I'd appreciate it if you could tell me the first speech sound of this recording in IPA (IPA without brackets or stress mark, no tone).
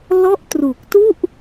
l